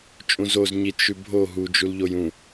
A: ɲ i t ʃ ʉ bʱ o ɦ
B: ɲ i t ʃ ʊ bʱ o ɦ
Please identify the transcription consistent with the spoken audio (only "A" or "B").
A